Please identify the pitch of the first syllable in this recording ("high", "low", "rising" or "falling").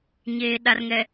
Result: low